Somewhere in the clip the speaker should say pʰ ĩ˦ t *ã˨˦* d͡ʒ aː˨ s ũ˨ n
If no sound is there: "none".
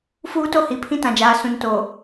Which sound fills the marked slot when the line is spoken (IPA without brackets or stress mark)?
ã˨